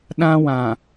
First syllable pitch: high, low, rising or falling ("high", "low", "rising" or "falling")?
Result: high